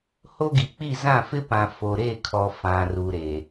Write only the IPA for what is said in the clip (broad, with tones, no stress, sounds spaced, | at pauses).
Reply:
h o˦ ɡ i˨ k͡p i˦˨ z ã˦˨ f ɪ˦ p ã˨ f o˨ ɾ e˦˨ kʰ ɔ˨ f ã˨ r u˨ ɾ e˨